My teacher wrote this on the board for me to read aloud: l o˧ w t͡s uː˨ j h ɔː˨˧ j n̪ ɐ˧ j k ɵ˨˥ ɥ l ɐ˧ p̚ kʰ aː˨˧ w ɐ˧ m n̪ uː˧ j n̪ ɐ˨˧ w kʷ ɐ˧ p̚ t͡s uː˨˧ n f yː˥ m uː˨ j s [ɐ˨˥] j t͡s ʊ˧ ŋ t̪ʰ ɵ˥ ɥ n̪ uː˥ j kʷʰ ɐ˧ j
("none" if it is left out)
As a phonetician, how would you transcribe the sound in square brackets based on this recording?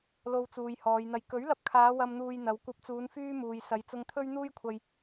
ɐ˨˧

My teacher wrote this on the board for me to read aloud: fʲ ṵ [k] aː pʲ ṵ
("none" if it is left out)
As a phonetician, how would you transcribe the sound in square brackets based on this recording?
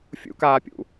k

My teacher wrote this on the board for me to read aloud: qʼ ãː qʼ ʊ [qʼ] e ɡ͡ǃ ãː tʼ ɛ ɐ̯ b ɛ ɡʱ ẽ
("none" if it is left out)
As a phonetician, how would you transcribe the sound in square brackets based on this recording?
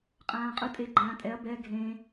tʼ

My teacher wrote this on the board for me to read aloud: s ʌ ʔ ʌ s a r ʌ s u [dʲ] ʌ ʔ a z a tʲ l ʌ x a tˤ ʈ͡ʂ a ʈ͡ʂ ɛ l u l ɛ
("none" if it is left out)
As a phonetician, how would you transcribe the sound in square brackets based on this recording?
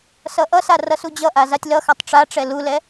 d͡ʑ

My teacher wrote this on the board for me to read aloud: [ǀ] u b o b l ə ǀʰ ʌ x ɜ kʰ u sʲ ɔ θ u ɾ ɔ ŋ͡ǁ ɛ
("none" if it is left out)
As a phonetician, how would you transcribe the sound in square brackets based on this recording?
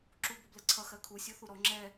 ǁ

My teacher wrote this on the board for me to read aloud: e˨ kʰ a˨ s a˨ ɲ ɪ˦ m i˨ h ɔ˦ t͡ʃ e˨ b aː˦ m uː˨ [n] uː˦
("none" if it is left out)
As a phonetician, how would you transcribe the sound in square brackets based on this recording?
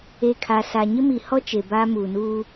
n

